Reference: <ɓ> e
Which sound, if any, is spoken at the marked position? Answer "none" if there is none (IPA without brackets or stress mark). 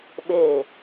ɓ